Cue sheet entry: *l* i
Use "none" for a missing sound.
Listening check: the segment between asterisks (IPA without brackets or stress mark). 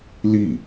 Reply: l